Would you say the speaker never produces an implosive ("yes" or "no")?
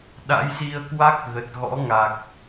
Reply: no